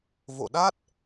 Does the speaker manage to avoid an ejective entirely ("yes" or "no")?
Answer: yes